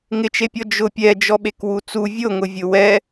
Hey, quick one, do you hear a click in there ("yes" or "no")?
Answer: no